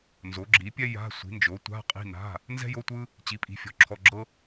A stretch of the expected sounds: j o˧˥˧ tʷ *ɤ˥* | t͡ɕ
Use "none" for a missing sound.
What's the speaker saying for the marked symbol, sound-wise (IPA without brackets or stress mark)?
ɯ˥